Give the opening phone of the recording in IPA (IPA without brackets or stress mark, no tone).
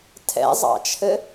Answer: tʰ